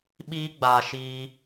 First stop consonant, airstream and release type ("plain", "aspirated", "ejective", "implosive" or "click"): implosive